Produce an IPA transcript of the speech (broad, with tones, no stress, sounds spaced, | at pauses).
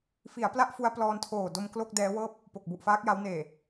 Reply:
f i˩˦ a̯ p l a˦˥ ʔ f u˦˥ a̯ p l ɔː˧ n tʰ oː˨˩ d o˧ m k l o˥˩ k̚ d ɛː˦˥ w ɤː˥˩ p̚ | p o˨˩ k̚ b u˨˩ ʔ f aː˦˥ k̚ j a˦˥ w n eː˨˩